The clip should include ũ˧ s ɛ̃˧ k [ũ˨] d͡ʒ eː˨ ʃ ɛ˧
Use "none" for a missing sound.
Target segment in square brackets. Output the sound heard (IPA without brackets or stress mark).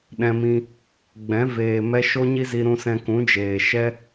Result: ũ˨˦